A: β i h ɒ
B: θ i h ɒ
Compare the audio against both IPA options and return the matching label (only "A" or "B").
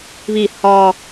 A